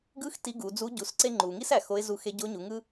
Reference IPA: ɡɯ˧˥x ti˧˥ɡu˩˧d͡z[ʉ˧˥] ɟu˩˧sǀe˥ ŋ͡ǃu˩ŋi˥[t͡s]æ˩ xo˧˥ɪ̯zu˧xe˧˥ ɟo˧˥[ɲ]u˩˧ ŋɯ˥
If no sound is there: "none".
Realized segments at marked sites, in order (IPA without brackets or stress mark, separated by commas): u˧˥, s, ɲ